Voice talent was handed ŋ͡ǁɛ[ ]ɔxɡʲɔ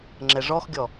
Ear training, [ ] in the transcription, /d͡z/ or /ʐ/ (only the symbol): ʐ